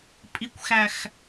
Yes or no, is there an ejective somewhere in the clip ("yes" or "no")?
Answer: yes